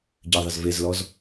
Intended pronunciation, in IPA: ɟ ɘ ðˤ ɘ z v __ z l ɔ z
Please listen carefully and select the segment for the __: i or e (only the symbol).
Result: e